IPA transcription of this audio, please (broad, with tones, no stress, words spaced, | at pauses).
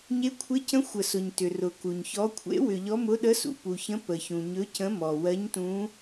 ɲe˧˥kʷʰe˧˥cə̃˧˥ xʷə˨sʊ˨ɲ tʏ˨rʊ˨ku˨ɲçɔ˧˥ kʷʰḛ˧˥wʏ˨ʎɔ˧˥ mʊ˧˥ɗə˧˥sṵ˨ pu˨çə̃˧˥ pə˨çũ˨ ɲɵ˧˥cə̃˧˥mɔ˨ wɜ˧˥ɲtũ˧˥